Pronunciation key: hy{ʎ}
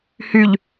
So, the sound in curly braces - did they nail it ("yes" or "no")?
yes